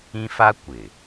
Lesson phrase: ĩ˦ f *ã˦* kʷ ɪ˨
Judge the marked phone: incorrect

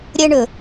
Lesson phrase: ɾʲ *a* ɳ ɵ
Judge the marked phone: incorrect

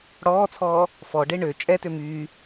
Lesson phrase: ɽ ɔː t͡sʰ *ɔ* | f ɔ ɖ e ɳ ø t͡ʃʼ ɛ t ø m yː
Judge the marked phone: incorrect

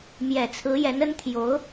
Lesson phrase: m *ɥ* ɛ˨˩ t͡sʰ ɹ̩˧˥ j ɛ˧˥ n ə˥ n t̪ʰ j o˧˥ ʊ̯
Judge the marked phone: incorrect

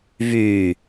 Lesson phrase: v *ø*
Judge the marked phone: incorrect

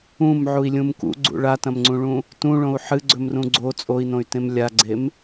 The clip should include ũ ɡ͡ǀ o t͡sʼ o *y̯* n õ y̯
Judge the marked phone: incorrect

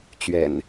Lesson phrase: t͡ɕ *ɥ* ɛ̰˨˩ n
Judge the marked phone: correct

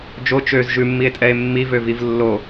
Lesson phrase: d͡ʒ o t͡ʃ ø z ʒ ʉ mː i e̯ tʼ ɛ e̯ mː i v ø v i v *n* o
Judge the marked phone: incorrect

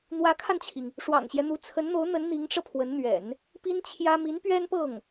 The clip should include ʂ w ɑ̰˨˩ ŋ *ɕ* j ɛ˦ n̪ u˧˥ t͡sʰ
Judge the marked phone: correct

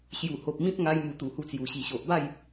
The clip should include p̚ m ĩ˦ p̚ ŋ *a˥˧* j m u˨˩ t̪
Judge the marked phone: incorrect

